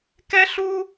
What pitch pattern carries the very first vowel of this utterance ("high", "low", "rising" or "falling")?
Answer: high